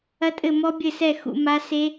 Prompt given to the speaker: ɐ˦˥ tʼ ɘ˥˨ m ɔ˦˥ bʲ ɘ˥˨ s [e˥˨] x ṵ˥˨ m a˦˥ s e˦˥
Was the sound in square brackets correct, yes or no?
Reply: no